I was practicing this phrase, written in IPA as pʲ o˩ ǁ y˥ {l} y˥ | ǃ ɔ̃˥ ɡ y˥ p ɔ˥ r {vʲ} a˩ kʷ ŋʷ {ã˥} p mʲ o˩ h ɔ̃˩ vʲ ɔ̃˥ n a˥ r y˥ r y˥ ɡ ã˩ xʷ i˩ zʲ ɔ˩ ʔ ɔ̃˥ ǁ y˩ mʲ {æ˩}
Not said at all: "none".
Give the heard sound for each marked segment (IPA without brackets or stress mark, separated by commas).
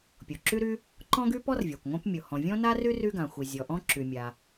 ɾ, vʲ, ã˥, a˩